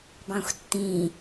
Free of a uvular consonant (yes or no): yes